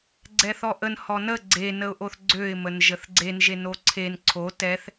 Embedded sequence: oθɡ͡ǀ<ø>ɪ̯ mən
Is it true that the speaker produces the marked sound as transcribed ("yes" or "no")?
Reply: yes